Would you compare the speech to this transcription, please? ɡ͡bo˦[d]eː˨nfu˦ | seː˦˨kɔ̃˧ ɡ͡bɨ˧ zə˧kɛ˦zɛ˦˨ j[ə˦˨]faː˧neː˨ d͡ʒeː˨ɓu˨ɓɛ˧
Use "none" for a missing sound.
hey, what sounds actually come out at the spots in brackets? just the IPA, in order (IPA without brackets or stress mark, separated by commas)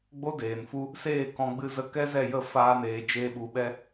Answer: d, ə˦˨